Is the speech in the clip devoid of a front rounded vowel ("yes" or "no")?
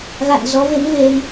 yes